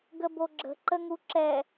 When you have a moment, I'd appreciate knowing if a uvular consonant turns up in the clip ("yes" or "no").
no